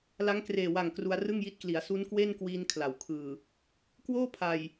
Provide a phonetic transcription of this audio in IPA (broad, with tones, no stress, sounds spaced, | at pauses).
l a˦˥ ŋ k r eː˨˩ w a˨˩ ŋ k r u˧ a̯ r ɯ˥˩ ŋ j i˦˥ t̚ k l i˩˦ a̯ s u˦˥ n k w e˥˩ n k w iː˧ n kʰ l a˩˦ w kʰ ɯː˨˩ | k w oː˥˩ pʰ a˨˩ j